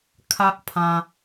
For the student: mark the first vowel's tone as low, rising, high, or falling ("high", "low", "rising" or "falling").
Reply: high